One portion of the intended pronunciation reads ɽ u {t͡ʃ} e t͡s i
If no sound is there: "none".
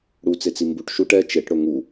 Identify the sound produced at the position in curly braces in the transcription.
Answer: t͡s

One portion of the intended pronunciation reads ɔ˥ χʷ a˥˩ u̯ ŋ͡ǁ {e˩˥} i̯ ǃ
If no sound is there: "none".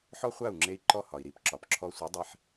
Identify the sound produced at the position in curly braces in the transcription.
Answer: e˧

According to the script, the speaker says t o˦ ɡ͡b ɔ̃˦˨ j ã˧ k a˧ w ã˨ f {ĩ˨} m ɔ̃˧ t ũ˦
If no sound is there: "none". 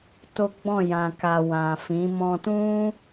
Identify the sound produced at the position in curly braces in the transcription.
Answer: ĩ˨˦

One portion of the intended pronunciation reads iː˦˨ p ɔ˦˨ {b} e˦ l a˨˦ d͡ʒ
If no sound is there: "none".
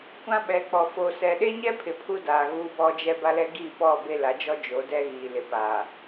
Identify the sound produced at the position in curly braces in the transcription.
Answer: b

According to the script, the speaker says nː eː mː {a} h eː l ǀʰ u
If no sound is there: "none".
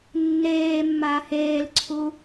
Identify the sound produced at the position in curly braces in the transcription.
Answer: a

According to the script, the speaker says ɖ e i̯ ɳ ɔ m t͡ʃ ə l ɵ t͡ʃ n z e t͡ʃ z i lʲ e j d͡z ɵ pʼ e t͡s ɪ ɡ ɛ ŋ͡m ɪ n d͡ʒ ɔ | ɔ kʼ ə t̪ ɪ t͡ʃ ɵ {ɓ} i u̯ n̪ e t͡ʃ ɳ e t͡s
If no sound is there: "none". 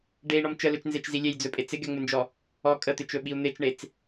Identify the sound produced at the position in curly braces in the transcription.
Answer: ɓ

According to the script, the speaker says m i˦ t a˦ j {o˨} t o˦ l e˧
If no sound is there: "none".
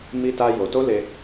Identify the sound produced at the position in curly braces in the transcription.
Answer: o˧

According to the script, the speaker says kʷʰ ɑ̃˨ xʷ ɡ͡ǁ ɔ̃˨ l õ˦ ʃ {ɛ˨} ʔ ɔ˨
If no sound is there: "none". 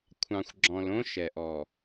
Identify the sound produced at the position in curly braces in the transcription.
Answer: ɛ˨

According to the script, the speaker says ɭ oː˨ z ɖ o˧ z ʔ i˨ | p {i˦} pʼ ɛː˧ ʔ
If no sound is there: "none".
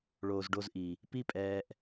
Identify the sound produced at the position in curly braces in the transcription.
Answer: i˦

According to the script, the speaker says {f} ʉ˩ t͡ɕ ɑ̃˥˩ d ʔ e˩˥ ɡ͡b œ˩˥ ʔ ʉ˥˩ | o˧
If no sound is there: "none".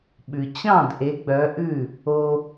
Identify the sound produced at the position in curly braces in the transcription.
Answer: ɓ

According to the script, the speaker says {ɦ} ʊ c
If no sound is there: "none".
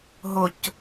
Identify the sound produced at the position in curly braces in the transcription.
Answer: ɦ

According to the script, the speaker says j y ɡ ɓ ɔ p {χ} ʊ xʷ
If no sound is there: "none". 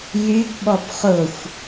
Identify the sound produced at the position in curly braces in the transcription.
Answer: χ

